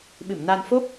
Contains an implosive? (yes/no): yes